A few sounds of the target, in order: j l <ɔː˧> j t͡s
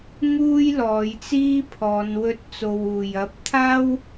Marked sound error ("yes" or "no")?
yes